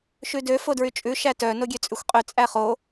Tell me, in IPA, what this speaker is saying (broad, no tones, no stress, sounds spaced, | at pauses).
ʃ ʉ d ø f o d ɹ y t͡ʃʼ ʉ ʃ æ t œ n o ɡʲ ø t͡sʼ ʉ xʷ qʼ ø t͡sʼ æ χ o